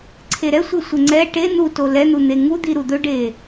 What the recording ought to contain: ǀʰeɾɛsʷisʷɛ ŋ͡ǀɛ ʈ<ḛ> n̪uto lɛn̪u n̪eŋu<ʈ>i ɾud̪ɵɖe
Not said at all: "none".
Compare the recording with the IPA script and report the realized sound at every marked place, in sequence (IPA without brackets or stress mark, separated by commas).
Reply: e, d̪